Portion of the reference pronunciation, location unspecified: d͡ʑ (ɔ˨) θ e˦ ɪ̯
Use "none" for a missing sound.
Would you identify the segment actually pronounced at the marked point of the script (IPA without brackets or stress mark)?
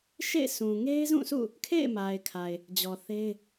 ɔ˨